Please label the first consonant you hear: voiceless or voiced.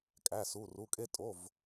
voiceless